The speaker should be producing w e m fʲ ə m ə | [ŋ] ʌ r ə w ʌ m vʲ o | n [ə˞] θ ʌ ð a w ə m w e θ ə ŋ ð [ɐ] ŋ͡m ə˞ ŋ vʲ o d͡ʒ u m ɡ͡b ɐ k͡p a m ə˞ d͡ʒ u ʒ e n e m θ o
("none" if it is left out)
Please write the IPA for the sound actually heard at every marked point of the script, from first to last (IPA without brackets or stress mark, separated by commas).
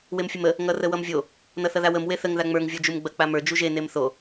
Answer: ŋ, ʌ, a